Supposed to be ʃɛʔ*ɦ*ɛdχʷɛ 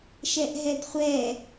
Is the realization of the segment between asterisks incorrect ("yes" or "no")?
no